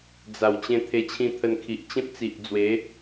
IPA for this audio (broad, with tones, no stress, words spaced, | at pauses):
d͡za˨˩w t͡ɕẽ˧ t̪ʰe˧t͡ɕʰĩ˧t̪ʰə˧nkʰi˨ʔ t͡ɕẽ˦p̚t͡si˨ʔ d͡zwe˨˦